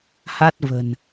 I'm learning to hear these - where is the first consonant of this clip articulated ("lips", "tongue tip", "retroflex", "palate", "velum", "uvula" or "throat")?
throat